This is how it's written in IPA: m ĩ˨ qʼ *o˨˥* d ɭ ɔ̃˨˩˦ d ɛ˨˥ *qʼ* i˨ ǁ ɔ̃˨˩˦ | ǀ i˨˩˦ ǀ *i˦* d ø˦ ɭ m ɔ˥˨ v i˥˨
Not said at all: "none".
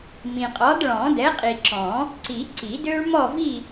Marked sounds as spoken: ɔ˨˥, qʼ, i˨˩˦

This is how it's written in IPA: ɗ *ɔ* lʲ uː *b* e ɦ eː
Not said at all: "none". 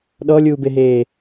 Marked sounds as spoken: ɔ, b

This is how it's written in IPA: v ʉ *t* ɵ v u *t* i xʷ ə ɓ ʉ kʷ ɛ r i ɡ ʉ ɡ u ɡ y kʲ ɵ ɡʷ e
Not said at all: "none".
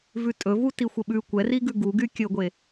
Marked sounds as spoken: tʼ, t

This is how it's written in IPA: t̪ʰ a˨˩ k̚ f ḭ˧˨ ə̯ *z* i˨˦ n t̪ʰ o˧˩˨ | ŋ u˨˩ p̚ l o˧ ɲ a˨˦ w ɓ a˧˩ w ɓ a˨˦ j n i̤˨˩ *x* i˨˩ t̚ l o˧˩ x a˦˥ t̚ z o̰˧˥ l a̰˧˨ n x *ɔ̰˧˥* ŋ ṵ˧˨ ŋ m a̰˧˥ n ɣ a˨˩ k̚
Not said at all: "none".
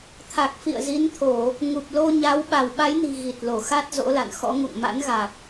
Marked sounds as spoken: z, ɣ, ɔ̰˧˥

